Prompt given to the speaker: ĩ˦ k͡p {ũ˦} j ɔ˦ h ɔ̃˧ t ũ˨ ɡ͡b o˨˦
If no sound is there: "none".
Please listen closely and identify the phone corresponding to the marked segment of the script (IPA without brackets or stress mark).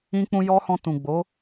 ũ˦